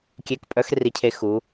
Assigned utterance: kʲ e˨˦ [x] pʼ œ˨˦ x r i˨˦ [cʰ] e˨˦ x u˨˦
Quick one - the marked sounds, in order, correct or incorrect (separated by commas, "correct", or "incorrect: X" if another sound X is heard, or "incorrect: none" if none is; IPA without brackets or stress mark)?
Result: incorrect: k, correct